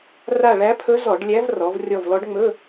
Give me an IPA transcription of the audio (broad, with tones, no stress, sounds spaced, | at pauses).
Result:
r a˦˨ ɭ æ˧˥ pʰ ɵ˧˥ z ɔ˧˩˧ ɖ lʲ æ˧˥ v r ɔ˩˧ v rʲ ɔ˦˨ v l ɔ˧˥ ɖ ŋ͡m ɵ˧˥˧